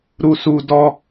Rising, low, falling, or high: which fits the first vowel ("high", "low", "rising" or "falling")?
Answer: low